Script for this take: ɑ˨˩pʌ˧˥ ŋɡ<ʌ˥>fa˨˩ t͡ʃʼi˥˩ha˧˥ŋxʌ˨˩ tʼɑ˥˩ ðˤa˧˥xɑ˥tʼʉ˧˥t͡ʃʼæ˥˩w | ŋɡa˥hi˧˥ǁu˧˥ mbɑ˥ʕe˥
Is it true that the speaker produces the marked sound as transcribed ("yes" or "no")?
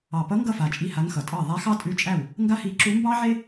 no